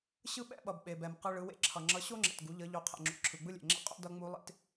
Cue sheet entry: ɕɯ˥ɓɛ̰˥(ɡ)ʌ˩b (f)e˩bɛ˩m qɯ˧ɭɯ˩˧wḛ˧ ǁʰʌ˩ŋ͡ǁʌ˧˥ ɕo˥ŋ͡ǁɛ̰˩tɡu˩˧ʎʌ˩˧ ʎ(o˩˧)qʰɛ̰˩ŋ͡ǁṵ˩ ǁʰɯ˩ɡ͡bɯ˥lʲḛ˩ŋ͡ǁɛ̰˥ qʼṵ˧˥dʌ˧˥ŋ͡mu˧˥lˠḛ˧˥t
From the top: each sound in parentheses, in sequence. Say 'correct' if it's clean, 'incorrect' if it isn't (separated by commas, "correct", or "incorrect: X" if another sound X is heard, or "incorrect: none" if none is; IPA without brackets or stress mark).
incorrect: ɓ, incorrect: ɓ, correct